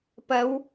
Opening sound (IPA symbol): p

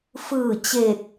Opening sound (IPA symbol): f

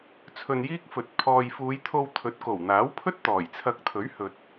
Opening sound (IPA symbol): t͡sʰ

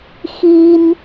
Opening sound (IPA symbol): x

